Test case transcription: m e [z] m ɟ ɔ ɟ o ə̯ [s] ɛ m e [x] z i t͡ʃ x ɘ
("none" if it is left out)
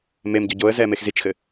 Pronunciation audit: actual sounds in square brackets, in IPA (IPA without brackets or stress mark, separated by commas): none, z, x